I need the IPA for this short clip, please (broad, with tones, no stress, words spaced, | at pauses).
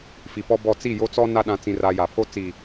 fi˨pɔ˦bɔ˦˨ t͡si˦˨jo˦t͡sɔ˦ na˦ ɗã˦t͡sĩ˦ra˦ ja˨pʰo˦t͡si˨